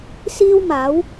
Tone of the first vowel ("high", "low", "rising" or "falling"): high